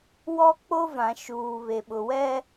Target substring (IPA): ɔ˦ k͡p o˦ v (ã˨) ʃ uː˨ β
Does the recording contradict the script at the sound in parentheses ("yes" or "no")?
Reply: no